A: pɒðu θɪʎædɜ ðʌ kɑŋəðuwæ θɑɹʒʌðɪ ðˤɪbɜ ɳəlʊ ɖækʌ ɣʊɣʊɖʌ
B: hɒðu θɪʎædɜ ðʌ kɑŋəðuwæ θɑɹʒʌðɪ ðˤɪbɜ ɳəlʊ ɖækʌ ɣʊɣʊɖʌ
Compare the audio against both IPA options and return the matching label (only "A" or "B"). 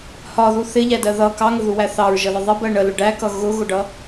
B